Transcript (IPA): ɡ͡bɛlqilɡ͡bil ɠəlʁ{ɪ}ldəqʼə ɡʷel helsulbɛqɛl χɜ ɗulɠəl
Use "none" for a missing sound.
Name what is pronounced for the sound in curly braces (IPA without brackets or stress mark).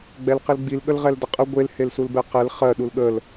ɛ